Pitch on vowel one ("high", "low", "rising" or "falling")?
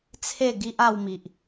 falling